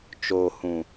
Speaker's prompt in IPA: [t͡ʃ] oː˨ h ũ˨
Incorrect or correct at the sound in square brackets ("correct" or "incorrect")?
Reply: correct